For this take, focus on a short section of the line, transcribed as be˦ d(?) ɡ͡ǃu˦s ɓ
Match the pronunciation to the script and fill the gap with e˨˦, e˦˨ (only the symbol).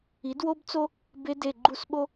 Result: e˦˨